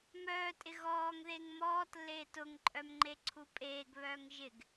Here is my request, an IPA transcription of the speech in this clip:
m œː tʼ ɪ ɣ ɔː ŋ ð e ŋ m ɔː t lː eː t ʊ ŋ ǃʼ œ m ŋ͡ǃ e ǀʰ u pʼ eː ɡ β œː ŋ ʒ ɪ ɡ

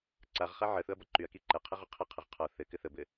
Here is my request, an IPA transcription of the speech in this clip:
ǀ a ʁ χ a ʕ ə θ ʊ ɐ̯ b ɒ ǃ y ɐ̯ k i ǃ ɛ qʰ ə ʁ ʊ qʰ ə qʰ ə ʁ qʰ ɒ θ ɘ k ɘ θ ə b ɘ

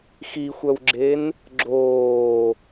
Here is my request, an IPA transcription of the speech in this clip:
x i xʷ œ w ɡ͡ǁ e n | ɡ͡ǁ oː

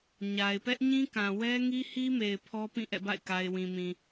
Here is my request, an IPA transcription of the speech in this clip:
ɲ a˨ ɪ̯ p ɛ˦ ʔ ɲ ĩ˦ k ã˨ w ɛ˦ ŋ i˦ h i˦ m e˨ ɪ̯ pʰ ɔ˦ p ĩ˦˨ ʔ ɛ̰˦˨ b a̰˦˨ ɪ̯ k a˨ ɪ̯ w ĩ˨ m ĩ˨

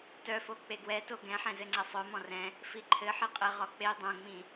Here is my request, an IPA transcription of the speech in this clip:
t œ f o k͡p e ɡ w ɛ t o ɡ ɛ̃ ħ ɛ̃ z ɘ ŋ͡ǀ ɛ sˤ œ m ɔ̃ r ɛ̃ | f i ǃʰ ɘ ħ i qʼ ɘ ʁ ɔ k͡p e dˤ õ ŋ͡m ĩ

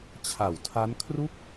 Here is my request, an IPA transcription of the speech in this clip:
t͡ɕʰ a˨˩ w tʰ a˦˥ n kʰ r u˥˩ k̚

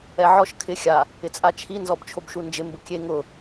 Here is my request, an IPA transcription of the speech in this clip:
ɛ ʕ ɔ ʃ kʰ ɪ xʲ a | ɪ t͡sʼ a t͡ʃʰ i n z ɔ b t͡ʃʰ o b ʃ u n d͡ʒ ɪ m b ʊ kʲ e ŋ ʊ

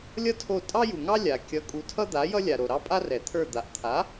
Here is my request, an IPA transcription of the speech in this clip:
lʲ ʌ˥ tʰ o˦˨ tʼ ɑ˥ j u˨ ŋ ɑ˥ lʲ a˨ kʲ ʌ˨˥ kʼ u˨ tʰ ʌ˥ d̪ a˨˥ j ʌ˥ lʲ a˨ ɾ o˨ ɾ ɑ˥ pʼ a˥ r ɛ˨˩˦ t̪ʰ ə˞˦˨ d̪ a˨ ʔ t̪ʰ a˨˥

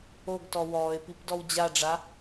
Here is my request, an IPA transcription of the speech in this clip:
o ɡ t ɔ w ɔː ɪ̯ p i p d ɔ w d͡ʑ a ɖ͡ʐ a

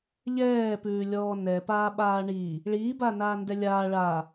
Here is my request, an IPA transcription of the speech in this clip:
ʎ ɛː p ʉː lʲ ɔː n ɛ p aː ɓ aː ɳ iː | ɭ iː b aː n aː n d ɛ lʲ aː ɭ aː

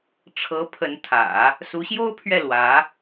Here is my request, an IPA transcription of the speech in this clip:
ʈ͡ʂʰ ɤ˧˥ pʰ ə˧˥ n t̪ʰ ä̰˨˩˦ | s u˧˥ ɕ j o˥ ʊ̯ pʰ ɥ ɛ˥˩ l w ä˧˥

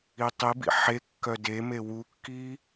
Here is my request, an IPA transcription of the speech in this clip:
i tˤ i b ḭ ħ e kː œ d e m e w u kː i

